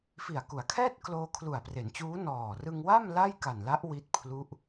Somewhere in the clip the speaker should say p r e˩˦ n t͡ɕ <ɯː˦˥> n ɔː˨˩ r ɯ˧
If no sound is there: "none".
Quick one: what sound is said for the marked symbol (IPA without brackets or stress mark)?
uː˦˥